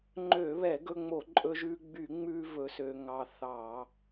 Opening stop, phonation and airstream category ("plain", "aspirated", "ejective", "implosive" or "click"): click